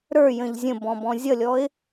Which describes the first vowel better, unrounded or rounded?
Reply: unrounded